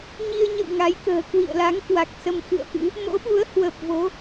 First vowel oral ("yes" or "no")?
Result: yes